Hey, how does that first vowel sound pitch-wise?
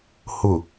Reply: low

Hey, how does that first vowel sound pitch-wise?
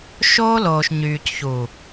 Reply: high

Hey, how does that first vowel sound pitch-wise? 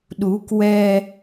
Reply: rising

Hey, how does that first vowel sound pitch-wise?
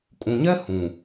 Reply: low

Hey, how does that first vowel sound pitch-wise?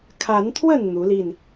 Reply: rising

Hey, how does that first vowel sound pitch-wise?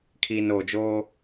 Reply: low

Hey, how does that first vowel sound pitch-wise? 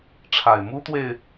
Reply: low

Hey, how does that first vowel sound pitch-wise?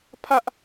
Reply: high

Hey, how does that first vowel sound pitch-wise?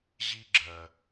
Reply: high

